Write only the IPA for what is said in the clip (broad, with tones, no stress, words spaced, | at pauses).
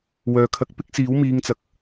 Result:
wœː˨kʰɐ˧k̚ pɪ˥k̚siː˨˥wmiː˨˧ŋ t͡sɐ˨k̚